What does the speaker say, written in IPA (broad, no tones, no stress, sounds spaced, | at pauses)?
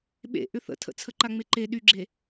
ɓ ḛ ʔ ʏ θ ə̰ tʰ ə̰ t͡sʰ ə ǃ a ŋ͡m e ǃ e ɗ y ɡ͡ǁ e